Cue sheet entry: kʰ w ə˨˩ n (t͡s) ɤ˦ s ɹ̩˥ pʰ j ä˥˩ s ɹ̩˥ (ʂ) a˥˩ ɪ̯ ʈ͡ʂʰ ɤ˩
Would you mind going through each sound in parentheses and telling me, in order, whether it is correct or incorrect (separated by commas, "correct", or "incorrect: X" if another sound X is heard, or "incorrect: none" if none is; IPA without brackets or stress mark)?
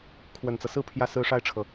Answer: correct, correct